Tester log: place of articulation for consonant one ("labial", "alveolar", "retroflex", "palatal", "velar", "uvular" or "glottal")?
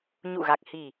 palatal